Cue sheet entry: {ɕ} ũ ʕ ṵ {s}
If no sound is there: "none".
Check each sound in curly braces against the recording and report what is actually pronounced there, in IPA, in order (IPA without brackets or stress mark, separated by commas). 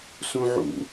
s, none